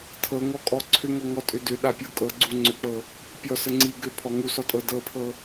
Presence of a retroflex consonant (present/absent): absent